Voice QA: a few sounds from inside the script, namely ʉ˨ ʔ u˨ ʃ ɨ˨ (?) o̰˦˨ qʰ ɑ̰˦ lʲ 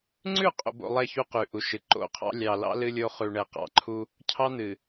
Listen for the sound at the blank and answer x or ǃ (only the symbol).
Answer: ǃ